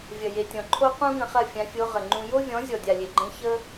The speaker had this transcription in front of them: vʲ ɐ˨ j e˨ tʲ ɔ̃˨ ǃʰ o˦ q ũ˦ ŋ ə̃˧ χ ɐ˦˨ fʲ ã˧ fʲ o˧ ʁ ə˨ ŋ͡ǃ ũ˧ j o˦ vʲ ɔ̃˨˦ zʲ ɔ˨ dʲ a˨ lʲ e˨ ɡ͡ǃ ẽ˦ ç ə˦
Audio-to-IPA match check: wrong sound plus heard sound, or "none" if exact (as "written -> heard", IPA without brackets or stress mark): none